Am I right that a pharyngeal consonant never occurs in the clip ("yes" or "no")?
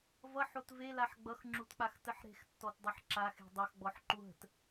no